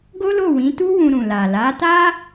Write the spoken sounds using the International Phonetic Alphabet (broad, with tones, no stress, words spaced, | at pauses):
ɡo˦lo˦˨wĩ˨˦tu˦ wũ˧ɾũ˨ la˨la˨˦ta˦